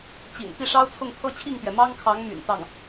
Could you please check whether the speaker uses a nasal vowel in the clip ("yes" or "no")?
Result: no